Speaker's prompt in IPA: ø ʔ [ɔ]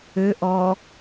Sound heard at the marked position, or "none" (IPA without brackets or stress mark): ɔ